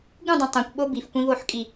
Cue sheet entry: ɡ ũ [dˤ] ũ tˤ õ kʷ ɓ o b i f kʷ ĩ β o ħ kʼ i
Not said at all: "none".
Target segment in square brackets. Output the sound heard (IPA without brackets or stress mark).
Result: dˤ